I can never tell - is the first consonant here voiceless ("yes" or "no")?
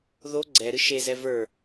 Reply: no